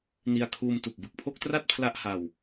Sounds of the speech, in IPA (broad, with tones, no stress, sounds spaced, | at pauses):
n i˧ a̯ kʰ uː˧ m t u˨˩ k̚ b ɯ˨˩ k̚ pʰ o˥˩ k̚ t r a˥˩ t̚ pʰ l a˥˩ ʔ h a˧ w